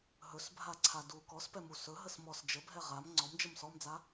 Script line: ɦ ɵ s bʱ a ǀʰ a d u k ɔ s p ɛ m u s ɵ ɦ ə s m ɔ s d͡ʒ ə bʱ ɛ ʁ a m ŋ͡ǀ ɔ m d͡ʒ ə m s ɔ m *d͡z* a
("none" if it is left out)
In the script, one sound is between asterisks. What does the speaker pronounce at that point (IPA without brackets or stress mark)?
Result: d͡z